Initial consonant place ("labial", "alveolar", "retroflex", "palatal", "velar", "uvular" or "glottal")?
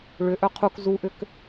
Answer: retroflex